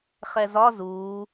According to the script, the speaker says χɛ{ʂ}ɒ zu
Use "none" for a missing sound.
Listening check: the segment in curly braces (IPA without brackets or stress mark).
z